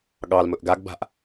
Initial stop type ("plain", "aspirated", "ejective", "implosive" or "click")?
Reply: implosive